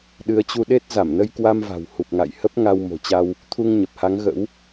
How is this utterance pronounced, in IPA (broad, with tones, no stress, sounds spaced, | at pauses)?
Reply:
ɗ ɨ˨˦ ə̯ t͡ɕ u˧ ɗ e˦˥ t̚ z a˧˩ m n ə˧ j k w a˧ m v a̤˨˩ w h u˨˩ p̚ ŋ a̰˧˨ j h ə˦˥ p̚ ŋ a˧ w m o̤˨˩ t͡ɕ a˧ w | t̪ʰ u˧ ŋ ɲ ə˨˩ p̚ h a˨˦ ŋ ɣ ə̰˧˥ w